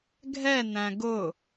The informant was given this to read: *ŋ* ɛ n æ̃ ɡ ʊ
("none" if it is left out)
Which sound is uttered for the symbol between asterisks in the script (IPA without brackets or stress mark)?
ɡʱ